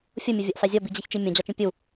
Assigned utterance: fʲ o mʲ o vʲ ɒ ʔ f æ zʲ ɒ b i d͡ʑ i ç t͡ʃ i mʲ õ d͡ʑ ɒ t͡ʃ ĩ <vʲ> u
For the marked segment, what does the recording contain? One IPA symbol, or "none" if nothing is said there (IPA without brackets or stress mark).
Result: pʲ